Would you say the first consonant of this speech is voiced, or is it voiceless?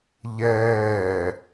voiced